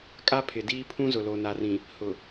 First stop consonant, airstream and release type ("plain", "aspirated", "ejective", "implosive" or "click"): ejective